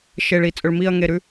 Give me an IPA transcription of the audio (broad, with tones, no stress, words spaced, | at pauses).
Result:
ʃe˨ɭi˨t͡sʼɵ˨ɭ mi˦˨ɐ̯ ŋe˨ɾʉ˦